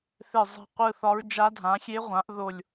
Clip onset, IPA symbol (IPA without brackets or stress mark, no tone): θ